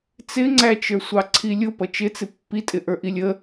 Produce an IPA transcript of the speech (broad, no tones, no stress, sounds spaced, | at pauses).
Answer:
t͡s ɪ ŋ͡ǀ æ t͡ʃ ə˞ sʷ ɑ ǀʰ i lʲ ʊ p ʌ t͡ʃ ɪ t͡s ɪ pː i tʼ ɪ ʔ ə˞ ʔ i lʲ ə